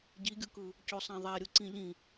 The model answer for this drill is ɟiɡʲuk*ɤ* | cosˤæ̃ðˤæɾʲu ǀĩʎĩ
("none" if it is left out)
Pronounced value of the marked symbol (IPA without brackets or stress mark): ɯ